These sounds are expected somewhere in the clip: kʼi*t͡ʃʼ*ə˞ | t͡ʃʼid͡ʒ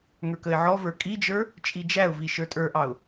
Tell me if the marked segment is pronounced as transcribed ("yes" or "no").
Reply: no